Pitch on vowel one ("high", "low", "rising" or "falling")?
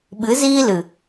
rising